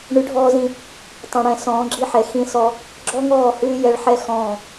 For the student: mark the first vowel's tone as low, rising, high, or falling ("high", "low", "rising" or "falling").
rising